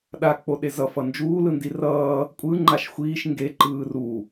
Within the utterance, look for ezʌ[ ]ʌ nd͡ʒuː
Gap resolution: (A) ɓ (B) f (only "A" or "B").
B